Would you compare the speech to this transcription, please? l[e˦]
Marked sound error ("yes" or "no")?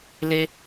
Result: no